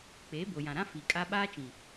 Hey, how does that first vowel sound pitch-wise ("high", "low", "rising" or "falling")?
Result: rising